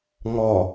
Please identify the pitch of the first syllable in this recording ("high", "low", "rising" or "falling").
low